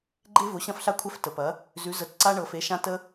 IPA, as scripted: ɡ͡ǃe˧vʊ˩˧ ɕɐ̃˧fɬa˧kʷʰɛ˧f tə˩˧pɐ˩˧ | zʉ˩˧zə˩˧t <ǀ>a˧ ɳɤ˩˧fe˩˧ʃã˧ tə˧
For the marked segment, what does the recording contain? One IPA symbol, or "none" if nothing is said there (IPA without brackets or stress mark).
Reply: ǀ